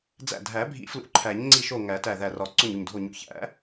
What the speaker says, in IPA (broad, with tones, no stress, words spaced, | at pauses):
d͡zæ̰˧˩dʱæ˨˩˦bʱḭ˨˩˦ flṵ˨˩˦ǃʰæ˨˩˦ɲ ŋ͡ǀi˧˩ʃo˧˩ ŋæ˨˩˦tæ˧˩ðæ˧˩rɒ˨˩˦ ǀo˧˩ɲu˧˩ɲdʱo˧˩ɲṵ˨˩˦ çæ̰˨˩˦